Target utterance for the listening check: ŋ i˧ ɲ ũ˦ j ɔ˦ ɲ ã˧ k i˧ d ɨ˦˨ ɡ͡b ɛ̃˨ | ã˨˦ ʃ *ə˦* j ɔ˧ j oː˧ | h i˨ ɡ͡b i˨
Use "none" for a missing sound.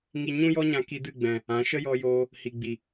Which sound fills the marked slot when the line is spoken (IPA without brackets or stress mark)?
ə˦